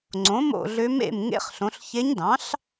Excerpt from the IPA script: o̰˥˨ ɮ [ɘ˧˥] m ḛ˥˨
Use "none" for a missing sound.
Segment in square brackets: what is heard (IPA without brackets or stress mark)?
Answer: ø˧˥